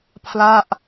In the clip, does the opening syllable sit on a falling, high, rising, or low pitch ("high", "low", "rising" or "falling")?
falling